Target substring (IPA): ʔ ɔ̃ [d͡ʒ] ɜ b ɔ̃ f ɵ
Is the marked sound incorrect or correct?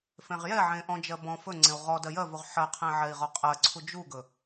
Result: correct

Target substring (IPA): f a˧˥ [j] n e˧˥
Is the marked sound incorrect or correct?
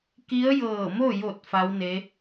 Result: incorrect: w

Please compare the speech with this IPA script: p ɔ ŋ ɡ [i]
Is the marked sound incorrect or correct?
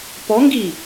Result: correct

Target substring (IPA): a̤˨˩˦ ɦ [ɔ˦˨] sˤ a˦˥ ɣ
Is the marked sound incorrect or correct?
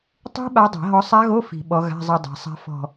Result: incorrect: ɔ˨˦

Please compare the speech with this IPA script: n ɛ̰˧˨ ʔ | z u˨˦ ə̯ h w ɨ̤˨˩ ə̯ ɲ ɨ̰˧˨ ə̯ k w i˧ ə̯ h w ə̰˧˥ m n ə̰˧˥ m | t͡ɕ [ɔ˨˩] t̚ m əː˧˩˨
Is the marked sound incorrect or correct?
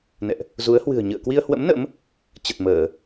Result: incorrect: ə˨˩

